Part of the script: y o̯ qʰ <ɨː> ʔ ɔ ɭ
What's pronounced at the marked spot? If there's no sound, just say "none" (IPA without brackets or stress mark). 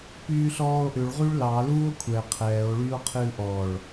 ɨː